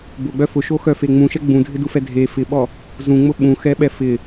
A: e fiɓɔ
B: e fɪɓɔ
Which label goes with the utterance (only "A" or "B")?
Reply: B